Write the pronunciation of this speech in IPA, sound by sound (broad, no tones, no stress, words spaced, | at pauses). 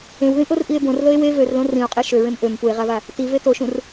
ẽwðĩʔorʔie̯ bõrðɤe̯ we vørlõ rĩo̯qʼe ʃøɹẽm ʔøm pue̯ʁava | tive toʃũr